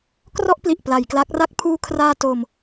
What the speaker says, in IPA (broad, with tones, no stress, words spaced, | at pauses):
krɔ˥˩ʔpli˨˩ʔ pla˩˦jkla˦˥k̚ra˥˩k̚ pʰuː˧kʰraː˧ to˧m